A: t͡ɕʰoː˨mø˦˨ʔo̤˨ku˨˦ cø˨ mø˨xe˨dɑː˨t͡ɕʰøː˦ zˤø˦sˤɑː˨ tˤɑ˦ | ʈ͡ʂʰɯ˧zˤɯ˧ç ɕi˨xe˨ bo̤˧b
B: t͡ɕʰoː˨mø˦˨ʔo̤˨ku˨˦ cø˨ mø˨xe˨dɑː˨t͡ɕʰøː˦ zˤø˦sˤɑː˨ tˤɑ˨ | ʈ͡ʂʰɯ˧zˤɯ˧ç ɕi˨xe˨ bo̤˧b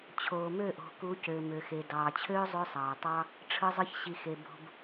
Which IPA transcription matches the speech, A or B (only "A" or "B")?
A